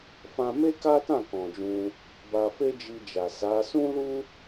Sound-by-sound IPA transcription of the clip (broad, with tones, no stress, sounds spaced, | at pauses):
f ã˧ m e˦ k a˦ t ã˦˨ k ɔ̃˨ d͡ʒ ũ˧ | b a˧ f e˦ d͡ʒ i˧ d͡ʒ a˨ s a˨˦ s ũ˦ l u˦